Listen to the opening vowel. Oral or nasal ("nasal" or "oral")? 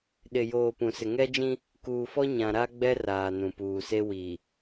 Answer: oral